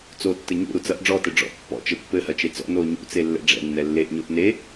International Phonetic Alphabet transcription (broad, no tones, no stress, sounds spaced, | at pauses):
t͡s o tː ɘ ɲ ṵ ɾ u t͡s ɐ ʔ ɖ͡ʐ ɔ t ɘ ɖ͡ʐ ɔ̰ ʔ pː ɔ̰ t͡ʃ ɘ pː ɘ h ɐ t͡ʃ e t͡s ɔ̰ n o ɲ ṵ t͡s e lː ɛ̰ ɖ͡ʐ ɛ̰ nː ɛ lː e ʔ ɲ o ʔ n e